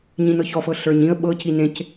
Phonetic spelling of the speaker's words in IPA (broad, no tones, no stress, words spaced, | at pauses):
ɲĩnɤçɔfɤ ɬə˞ɲĩə̯ ɓɤci nẽc